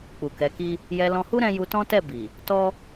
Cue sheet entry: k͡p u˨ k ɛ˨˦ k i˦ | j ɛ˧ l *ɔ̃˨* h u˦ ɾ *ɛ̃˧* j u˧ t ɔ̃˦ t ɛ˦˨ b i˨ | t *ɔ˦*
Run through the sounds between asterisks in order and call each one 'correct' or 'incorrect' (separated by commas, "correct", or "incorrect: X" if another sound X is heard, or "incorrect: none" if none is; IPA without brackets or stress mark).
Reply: incorrect: ɔ̃˧, correct, correct